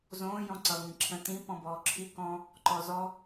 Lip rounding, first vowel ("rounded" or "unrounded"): rounded